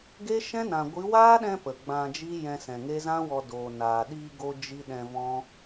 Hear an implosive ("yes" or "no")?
yes